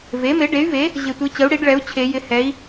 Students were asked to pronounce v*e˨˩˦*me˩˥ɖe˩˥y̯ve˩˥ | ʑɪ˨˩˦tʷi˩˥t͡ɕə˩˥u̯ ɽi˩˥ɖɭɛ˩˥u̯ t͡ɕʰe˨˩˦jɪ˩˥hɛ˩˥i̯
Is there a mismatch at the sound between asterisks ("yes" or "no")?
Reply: yes